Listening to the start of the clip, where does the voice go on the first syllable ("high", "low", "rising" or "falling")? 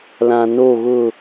low